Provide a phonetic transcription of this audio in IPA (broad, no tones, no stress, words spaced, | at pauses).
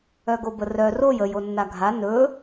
œɡobərœ roj əj onːaɡʱa nɵ